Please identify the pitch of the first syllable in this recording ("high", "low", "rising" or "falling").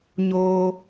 high